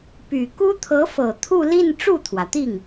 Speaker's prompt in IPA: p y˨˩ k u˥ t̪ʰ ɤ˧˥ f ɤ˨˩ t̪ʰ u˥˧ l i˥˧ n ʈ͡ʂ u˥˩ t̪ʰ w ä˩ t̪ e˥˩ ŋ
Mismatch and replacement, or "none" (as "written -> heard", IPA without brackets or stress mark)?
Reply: e˥˩ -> i˥˩